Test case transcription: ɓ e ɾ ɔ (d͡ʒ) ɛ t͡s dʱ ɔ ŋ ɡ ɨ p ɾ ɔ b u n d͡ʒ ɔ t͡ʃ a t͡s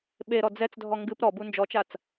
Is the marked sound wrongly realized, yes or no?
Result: yes